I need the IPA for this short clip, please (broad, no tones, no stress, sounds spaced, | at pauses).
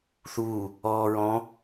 θ uː | ɔː ɹ ɔ̃